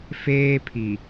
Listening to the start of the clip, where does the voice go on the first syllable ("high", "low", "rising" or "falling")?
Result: high